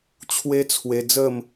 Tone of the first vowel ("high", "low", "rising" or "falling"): high